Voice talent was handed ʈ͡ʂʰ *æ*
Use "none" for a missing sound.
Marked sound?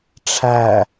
æ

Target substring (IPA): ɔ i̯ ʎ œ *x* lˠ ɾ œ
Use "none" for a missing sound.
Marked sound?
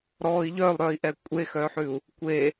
none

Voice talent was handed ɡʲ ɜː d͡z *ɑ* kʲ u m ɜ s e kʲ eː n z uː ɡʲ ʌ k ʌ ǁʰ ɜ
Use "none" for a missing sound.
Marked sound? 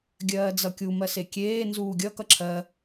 ʌ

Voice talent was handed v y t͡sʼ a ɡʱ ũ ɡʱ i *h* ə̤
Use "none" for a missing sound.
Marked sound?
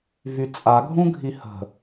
h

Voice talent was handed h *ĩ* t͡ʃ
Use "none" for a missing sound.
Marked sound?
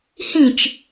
ĩ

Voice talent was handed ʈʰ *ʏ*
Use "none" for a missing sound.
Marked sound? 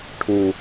u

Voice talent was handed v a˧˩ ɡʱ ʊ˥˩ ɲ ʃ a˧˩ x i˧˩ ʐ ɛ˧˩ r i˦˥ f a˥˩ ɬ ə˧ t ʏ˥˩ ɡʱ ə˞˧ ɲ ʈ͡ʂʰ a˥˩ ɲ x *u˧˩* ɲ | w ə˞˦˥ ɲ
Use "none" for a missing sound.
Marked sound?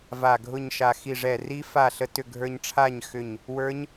ʏ˧˩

